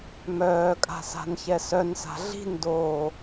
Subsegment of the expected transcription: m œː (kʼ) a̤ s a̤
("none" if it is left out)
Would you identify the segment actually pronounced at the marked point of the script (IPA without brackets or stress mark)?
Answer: kʼ